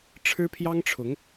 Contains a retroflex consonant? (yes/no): yes